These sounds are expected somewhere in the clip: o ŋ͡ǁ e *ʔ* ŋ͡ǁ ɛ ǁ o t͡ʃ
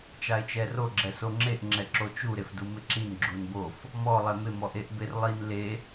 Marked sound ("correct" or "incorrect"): correct